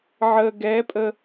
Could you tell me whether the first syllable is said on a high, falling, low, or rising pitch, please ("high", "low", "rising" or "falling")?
low